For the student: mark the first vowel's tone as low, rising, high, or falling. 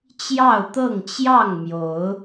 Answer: falling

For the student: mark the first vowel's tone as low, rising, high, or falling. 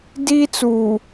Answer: high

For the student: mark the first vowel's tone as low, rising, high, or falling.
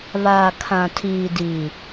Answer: low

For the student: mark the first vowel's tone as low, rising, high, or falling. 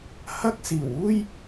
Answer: high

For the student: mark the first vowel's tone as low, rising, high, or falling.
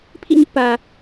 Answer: falling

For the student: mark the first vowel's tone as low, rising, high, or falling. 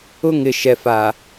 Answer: high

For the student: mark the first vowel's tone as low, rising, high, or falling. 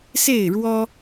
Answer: falling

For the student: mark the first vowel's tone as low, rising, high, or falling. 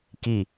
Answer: falling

